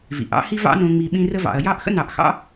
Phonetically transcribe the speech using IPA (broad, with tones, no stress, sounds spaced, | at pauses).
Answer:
v ḭ˩ ʔ ɑ̰˦ h i˦ v ɑ̰˦ n õ˨ ŋ͡m i˨ ɓ ĩ˦ r ə˥ v ɑ̰˨ ɐ̯ j ɑ˥ ʔ x ə̰˥ n ɑ˨ ʔ x ɑ̰˥